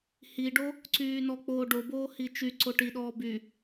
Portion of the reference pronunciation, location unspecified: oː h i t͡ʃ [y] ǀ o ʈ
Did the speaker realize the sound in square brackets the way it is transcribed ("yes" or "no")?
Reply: yes